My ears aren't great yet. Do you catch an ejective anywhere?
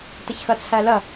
no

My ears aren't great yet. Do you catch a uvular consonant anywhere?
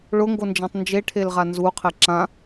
yes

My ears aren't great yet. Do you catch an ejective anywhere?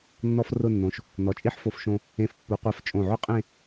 yes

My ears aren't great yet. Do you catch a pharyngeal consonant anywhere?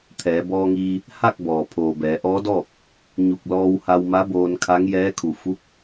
no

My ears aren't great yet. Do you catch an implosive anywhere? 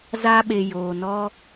yes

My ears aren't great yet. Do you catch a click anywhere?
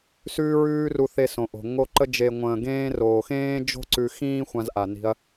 yes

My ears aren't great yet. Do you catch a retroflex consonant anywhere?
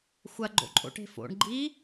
yes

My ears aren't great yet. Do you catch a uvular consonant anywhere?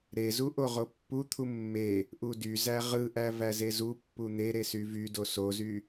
yes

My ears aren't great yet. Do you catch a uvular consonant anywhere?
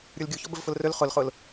yes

